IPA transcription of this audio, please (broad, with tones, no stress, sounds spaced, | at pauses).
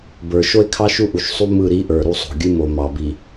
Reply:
b ə˞˨ ʃ o˦ e̯ kʰ ɑ˦ ʃ u˦ ʔ u˨ ʃ sˤ u˦ m ɯ˦˨ ɾ i˦ ʔ ə˞˨ ɾ u˦ sˤ o̤˨ ɡʲ ɨ˦ m o˨ m ɑ˨ b i˨